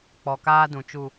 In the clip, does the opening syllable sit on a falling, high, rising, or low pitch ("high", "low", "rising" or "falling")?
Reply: low